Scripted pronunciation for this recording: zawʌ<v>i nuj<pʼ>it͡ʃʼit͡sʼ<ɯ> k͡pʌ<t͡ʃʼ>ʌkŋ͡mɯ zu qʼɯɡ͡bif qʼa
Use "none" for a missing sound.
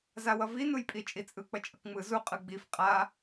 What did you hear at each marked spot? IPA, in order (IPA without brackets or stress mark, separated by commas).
v, pʼ, ɯ, t͡ʃʼ